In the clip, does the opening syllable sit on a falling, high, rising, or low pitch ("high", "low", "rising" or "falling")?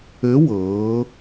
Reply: rising